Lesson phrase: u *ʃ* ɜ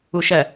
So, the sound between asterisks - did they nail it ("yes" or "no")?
yes